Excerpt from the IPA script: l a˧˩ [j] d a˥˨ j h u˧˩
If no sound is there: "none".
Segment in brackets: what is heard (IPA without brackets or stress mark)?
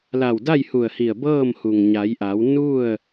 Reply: w